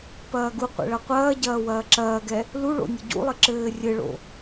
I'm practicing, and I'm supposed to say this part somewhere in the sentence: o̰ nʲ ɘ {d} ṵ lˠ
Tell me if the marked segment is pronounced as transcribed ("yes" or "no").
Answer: no